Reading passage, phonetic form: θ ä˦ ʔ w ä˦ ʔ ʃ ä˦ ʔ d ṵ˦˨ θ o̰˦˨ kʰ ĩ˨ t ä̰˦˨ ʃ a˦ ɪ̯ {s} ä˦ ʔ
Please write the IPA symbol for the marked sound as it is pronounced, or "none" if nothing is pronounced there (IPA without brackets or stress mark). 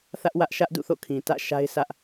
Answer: s